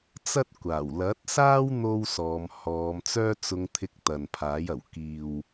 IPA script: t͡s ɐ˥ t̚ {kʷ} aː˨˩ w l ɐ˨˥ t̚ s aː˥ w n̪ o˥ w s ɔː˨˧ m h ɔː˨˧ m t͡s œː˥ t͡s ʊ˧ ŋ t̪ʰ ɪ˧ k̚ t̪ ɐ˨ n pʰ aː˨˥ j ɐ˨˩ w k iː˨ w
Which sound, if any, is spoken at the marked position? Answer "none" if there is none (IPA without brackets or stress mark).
kʷ